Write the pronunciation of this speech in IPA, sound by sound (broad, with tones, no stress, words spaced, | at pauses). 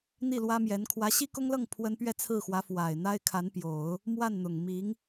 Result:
n̪i˥˩lwä˥mjɛ˧˥n kʰwä˧˥ɕi˥kʊ˥ŋlɤ˥˩ŋ pʰwə˥n pɥɛ˥˧t͡sʰɹ̩˥˩xwä˧˥ fwa˨˩ɪ̯n̪a˥ɪ̯ kʰa˧˥npjo˨˩˦ʊ̯ | mwa˥˩nn̪ʊ˨˩ŋmi˧˥ŋ